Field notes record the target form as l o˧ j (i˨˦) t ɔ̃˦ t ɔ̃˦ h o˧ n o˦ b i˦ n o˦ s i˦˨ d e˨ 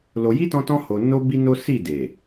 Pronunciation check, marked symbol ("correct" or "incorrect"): incorrect